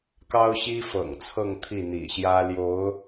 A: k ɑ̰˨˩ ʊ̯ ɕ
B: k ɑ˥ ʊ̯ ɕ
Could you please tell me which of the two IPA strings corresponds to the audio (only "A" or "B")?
B